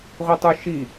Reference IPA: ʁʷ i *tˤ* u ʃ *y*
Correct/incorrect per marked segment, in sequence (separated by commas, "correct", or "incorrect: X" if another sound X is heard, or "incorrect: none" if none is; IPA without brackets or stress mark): correct, incorrect: i